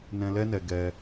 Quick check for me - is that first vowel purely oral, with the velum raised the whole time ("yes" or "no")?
no